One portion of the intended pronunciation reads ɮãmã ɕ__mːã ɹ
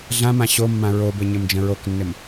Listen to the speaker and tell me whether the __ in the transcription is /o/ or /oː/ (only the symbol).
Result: o